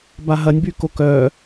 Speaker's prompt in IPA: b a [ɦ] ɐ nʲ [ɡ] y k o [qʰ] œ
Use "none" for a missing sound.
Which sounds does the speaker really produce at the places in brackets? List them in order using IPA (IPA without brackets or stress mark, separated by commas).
ɦ, b, k